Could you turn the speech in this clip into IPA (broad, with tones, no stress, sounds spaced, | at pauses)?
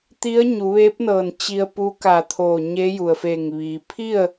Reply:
t̪ i˧˥ ə̯ ɲ u˩˧ ʋ eː˧˥ p̚ n ɤː˧˩ n t͡ɕ i˧ ə̯ p u˧˥ k a˧˩ t̪ʰ oː˧˩ ɲ e˧˥ j u˩ ə̯ f eː˧˩ ŋ ʋ iː˩ pʰ i˥˨ ə̯